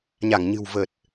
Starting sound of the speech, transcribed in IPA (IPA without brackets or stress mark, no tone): ɲ